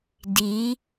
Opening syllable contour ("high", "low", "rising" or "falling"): rising